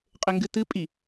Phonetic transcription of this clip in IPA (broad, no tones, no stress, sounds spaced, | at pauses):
qʼ ɘ ŋ ɡ ɨ t ɨ pʼ i